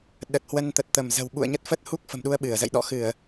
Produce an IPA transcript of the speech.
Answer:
ɗ ə˨˩ t̚ h w ə˧ n t̪ ə˨˩ t̚ t̪ ə˧˩ m z ə̤˨˩ w ɓ ṵ˧˨ ə̯ ɲ ə˦˥ t̚ f ə˦˥ t̚ h u˦˥ k̚ f ə̤˨˩ m ɗ u˧ ə̯ ɓ ɨ˧˩ ə̯ z ə̰˧˨ j ɗ ɔ̰˧˨ x ɨ˧˩˨ ə̯

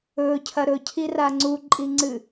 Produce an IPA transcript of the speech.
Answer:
ɵ cʰ ɐ ɾ ɵ cʰ i r a ŋ͡ǀ u ǃʼ i ŋ͡ǀ ɨ

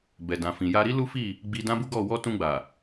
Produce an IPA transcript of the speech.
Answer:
b ɛ˨ d ã˨ f ĩ˨ j a˧ ɾ i˦ l u˦ f i˦˨ | ɡ͡b i˧ d ã˦ b u˦ ɡ ɔ˦˨ w ɔ˧ t ũ˧ ɡ͡b a˨

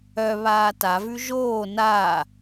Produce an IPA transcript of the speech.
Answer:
œ β aː t a v ʉ ʒ oː n a

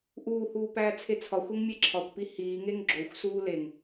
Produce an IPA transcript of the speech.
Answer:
ʔ uː h uː p æː t͡sʰ e t͡sʰ ɒ xʷ e ŋ mʲ e ǁʰ ɒ kʷ p i h iː ŋ e ŋ ɡ͡ǁ o xʷ s uː l e ŋ

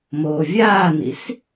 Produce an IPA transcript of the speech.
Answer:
m oː vʲ aː n̪ ḭ s

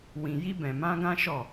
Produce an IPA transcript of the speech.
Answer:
w ĩ˧ j i˦ b ɛ̃˧ m ã˦ ɡ ã˦ ʃ ɔ˦˨

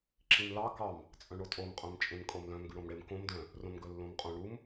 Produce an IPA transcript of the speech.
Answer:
ǁ ĩ m l ɑ k ɑ m | t͡sʼ œ̃ ɳ o tʼ o m qʼ œ̃ m t͡ʃʼ ẽ m kʼ o m l œ̃ m ɡ ʉ ɽ õ m ɽ e m k õ m d œ̃ | r õ m ɡ ɵ lː õ m qʼ õ ɳ u m

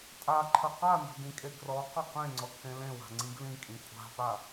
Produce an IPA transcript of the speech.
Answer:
tʼ a ǃʰ ɐ q a n ɔ̤ d ĩ kʼ e ɡ r ɔ q ɐ q ẽ ŋ͡ǀ ɔ kʰ ẽ l ẽ w a̤ ŋ͡ǀ ĩ ɡ l ĩ kʼ ĩ kʷʼ a̤ p a

